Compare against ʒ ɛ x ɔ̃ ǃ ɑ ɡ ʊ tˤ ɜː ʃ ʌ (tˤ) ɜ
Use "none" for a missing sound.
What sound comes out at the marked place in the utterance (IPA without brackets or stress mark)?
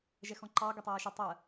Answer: tˤ